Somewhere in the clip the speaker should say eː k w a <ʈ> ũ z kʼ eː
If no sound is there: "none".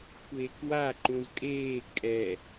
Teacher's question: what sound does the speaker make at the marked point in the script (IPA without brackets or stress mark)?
ǃ